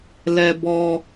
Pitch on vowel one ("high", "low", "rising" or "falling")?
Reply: high